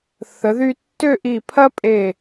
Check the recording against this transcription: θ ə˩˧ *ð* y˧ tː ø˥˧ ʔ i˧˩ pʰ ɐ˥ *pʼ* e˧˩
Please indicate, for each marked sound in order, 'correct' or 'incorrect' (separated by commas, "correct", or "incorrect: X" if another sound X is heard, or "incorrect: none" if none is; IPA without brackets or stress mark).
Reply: correct, correct